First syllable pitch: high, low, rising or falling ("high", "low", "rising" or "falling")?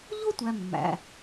high